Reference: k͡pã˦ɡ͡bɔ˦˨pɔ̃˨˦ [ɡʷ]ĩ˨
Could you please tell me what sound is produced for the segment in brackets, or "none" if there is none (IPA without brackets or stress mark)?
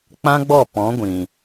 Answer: ɡʷ